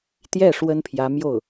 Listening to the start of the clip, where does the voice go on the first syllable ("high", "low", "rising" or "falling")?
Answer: falling